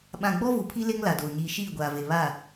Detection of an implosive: present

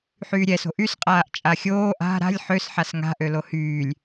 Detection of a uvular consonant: present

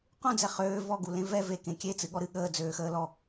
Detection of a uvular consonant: present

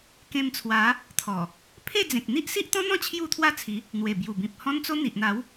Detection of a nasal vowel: present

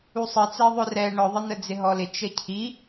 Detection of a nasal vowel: absent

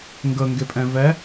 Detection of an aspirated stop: absent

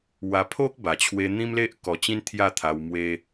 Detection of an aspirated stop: present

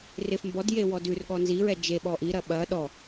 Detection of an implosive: present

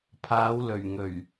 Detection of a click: absent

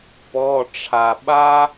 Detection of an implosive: present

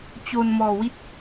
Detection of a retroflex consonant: absent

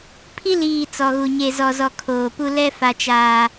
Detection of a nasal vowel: absent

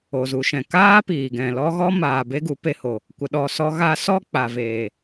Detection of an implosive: present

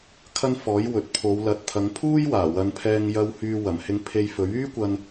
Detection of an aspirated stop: present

